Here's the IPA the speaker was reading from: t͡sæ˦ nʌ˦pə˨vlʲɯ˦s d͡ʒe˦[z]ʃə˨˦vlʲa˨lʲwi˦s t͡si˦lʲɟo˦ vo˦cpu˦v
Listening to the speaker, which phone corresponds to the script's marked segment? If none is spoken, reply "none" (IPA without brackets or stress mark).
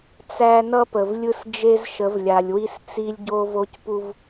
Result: z